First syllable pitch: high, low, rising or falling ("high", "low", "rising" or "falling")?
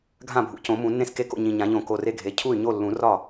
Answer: falling